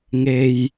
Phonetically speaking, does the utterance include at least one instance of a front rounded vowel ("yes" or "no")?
no